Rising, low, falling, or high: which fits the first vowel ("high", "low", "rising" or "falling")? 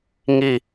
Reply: falling